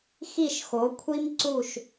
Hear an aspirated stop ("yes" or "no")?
yes